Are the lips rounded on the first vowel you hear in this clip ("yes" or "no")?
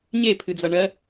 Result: no